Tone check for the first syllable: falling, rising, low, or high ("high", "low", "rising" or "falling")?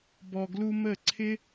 low